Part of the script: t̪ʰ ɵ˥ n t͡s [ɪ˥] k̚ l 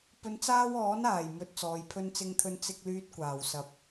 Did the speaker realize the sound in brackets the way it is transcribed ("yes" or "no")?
yes